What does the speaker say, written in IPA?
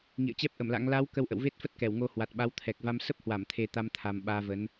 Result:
ŋḭ˧˨ə̯t͡ɕɛ˦˥p̚ʔə˧˩mla̰˧˥ŋ la˨˦w kə˧wʔə̰˧˨wve˦˥t̚fə˦˥t̚ kɛ˧˩wŋo˧hwa˨˩t̚ɓa˨˦w t̪ʰɛ˨˩k̚va˧m sə˦˥p̚hwa˧˩mt̪ʰe˨˩ t̪a˧m t̪ʰa˨˩m ɓaː˧ və˨˦n

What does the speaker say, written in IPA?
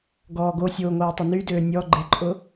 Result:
ɡɔːɡosʲoː ŋoːtˤʊnydøː nʲɔ ɡ͡ǃɪǃʼʊ

